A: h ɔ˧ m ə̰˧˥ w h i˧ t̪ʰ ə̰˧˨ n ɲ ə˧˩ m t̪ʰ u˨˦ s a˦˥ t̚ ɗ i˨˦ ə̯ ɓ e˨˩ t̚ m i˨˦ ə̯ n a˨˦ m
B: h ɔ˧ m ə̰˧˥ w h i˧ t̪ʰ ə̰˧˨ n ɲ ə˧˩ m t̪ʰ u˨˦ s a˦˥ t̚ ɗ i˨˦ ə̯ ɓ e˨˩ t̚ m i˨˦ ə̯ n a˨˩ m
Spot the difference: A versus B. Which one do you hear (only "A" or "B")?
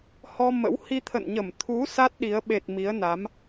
A